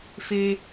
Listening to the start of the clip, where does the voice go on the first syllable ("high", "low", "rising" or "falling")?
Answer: high